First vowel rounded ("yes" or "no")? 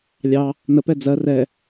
no